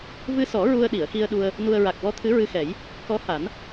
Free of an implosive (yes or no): no